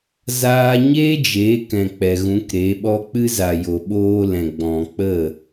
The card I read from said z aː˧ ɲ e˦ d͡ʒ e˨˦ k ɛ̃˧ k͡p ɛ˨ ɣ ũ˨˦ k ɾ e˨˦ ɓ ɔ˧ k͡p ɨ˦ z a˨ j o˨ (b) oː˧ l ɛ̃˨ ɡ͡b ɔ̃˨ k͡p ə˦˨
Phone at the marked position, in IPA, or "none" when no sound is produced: ɓ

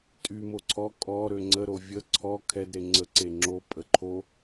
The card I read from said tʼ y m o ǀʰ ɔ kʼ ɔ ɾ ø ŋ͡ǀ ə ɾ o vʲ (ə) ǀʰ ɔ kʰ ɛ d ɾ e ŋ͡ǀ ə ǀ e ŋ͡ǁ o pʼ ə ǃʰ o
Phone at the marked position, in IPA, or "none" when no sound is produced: ə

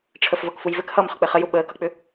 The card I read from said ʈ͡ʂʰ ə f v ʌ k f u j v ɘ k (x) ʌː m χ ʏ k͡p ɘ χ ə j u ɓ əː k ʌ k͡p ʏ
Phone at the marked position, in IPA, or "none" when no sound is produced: h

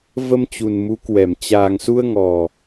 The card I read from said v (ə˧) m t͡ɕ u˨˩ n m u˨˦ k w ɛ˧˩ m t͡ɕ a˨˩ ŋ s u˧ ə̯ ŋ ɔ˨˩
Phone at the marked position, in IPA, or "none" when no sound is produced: ə˧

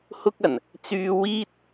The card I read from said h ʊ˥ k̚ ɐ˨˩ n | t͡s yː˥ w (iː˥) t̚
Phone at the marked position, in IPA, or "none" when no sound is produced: iː˥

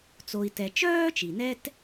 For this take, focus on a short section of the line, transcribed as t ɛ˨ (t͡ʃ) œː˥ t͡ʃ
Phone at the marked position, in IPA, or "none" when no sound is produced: t͡ʃ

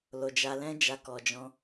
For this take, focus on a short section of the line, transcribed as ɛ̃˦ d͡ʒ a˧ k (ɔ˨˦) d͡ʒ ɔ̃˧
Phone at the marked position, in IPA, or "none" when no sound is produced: ɔ˨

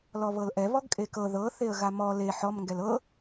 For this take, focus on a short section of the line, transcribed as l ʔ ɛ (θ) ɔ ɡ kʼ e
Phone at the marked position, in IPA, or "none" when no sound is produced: β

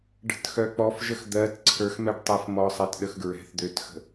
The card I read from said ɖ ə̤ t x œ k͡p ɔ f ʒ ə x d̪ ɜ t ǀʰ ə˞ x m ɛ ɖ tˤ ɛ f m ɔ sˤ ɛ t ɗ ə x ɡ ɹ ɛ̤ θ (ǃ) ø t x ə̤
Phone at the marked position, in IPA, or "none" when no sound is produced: d̪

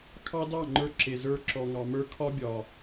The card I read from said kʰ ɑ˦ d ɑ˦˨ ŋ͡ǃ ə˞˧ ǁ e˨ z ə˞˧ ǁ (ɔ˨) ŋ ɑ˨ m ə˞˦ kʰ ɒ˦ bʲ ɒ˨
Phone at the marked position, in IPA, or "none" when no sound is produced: ɔ˨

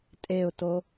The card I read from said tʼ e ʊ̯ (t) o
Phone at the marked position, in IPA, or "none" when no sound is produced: t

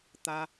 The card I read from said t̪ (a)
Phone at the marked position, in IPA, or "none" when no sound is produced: a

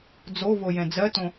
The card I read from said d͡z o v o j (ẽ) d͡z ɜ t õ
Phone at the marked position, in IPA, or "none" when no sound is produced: ɛ̃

